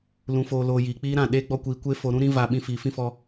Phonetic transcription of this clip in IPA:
lũ˨foː˨loː˨ jiː˨k͡piː˦ɾã˦˨ ɗeː˦ɡ͡bɔ˦kʷiː˧ kʷeː˦ fo˧ɾũ˦ ɾĩ˦ va˧ ɓĩ˧fiː˨fĩ˦fɔ˧

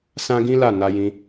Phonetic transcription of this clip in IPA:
sã˦ɡĩ˦la˦˨ na˧jĩ˧

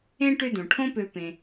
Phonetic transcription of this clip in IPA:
ẽ˥ʈʏ˦ dõ˩ʈʰõ˦pø˨pẽ˩

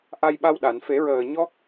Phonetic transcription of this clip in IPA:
ʔa˧jɓa˧wɗa˨˩˨n fe˨˩˦ɹəː˨˩ɲɔ˦˥k̚

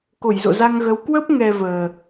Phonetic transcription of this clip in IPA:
ko˧˩jzo̰˧˨za˧ŋɣə˨˦w kwə˦˥p̚ ŋɛ˧vəː˨˩

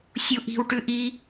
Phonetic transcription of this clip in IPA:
sʲuʔi̤w ʈʉʔi

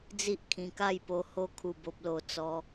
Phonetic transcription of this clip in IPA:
d͡zi˦ʔkʰĩ˧ka˥˧jpo˧ ho˧kʰu˨˩bo˨p̚lo˨˩ t͡sɔ˧

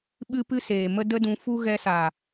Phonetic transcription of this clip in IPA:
ɓɨ˦pɨ˦ seː˨mə˦ də˦dũ˧fu˦ ɣɛ˧saː˨

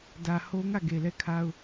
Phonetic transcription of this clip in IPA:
dä˨ho˦ŋä˦˨ ɡe˨lɛ˦˨kʰa˦ʊ̯

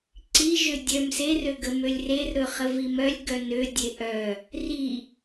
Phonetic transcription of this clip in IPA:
ǀiʒø dʲœm serøɡə mølʲrer ɾɵχəvimœlʲ ɡœnø dʲeʔœ | ri

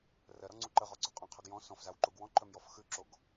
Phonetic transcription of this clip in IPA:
rɜɾɔŋ͡ǀu ǃəʁɔǀu qʼõqʰœɡ jɔ̃ sɔ̃fzawǃuɡ wɔ̃ǃœmjɔf xʉǁoɡ

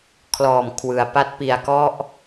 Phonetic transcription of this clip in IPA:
kʰlɔː˨˩mkʰwɯ˩˦a̯pa˦˥t̚pi˧a̯ kɔ˥˩ʔ

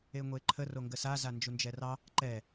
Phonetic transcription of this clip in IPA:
eŋʷeǃʰə roŋɡəsa zand͡ʒund͡ʒɛrɑ | ǃɛ

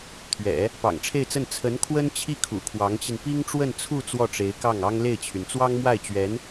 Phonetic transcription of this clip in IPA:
t̪ʰɥɛ̰˨˩˦ | pɑ̰˨˩ŋʈ͡ʂʰe˥˧ɪ̯t͡sə˥˩n t͡sʰə˧˥n kʰwə˥nt͡ɕʰi˥˩ kʰṵ˨˩kʰwɑ˧˥ŋt͡ɕi˧n pi˥ŋʈ͡ʂwə˥˧nt͡sʰu˥˧ t͡swɔ˥˩ʈ͡ʂe˧˥ɪ̯kɑ˥˩ŋ ɑ˥ŋle˥˩ɪ̯t͡ɕʰy˩n t͡swɑ˥ŋmwa˥˩ɪ̯t͡ɕɥɛ˧˥n

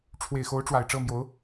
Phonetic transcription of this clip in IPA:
ʈ͡ʂʰwe˨˩ɪ̯xo˧˥ʊ̯ ʈ͡ʂwa˨˩ɪ̯ʈ͡ʂɤ˥˩mjo˧˥ʊ̯

